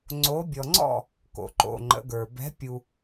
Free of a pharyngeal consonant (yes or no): yes